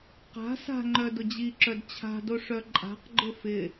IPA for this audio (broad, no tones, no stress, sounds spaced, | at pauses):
q a̤ s a̤ ŋ͡ǃ œ d ʊ d͡ʑ i ǁ œ d t͡ɕʰ a̤ d o ʂ œ ǃʼ a̤ q ɡ͡ǃ ʊ f ɪ